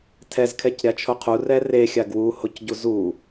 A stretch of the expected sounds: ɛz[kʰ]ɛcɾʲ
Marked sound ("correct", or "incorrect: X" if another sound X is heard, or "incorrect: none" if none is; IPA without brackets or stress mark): correct